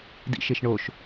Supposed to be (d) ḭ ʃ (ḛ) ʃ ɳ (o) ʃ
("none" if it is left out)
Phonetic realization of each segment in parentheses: d, e, o

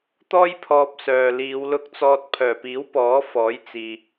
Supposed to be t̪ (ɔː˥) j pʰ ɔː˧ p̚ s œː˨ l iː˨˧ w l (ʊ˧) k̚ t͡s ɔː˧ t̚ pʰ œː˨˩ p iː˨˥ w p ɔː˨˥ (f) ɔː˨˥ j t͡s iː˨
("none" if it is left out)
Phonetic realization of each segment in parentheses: ɔː˥, ʊ˧, f

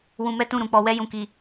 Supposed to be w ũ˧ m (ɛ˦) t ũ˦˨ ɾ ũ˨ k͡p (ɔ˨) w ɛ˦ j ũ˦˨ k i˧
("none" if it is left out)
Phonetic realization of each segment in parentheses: ɛ˦, ɔ˧

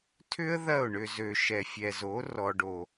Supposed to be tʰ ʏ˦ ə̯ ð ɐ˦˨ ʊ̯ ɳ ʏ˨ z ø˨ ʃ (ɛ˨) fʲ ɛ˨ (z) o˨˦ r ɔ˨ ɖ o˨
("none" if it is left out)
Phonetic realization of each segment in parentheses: ɛ˨, z

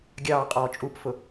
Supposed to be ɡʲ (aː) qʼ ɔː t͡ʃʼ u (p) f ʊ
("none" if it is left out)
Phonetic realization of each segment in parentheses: ɑː, p

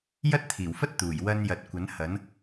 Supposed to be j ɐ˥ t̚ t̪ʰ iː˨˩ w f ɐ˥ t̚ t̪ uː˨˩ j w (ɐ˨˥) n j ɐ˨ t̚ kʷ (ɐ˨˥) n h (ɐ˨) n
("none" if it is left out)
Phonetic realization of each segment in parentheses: ɐ˧, ɐ˨˥, ɐ˨˥

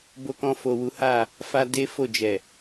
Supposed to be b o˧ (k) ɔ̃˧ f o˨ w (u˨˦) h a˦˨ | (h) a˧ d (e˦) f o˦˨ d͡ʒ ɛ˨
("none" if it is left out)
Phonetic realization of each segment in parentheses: k, u˨˦, f, e˦

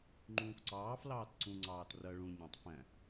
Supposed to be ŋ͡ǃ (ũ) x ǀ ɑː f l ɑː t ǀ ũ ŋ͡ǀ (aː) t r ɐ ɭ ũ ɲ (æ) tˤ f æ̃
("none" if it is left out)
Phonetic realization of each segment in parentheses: ũː, ɑː, æ̃

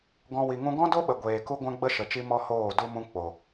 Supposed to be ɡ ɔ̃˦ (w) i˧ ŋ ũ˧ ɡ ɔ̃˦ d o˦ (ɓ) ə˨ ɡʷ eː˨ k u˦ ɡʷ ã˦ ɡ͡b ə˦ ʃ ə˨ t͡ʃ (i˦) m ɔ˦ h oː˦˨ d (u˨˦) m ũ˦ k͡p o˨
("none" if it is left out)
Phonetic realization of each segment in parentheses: w, ɓ, i˧, u˦

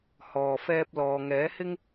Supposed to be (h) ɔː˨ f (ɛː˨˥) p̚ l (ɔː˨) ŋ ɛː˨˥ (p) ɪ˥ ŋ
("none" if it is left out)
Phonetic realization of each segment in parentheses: h, ɛː˧, ɔː˨, h

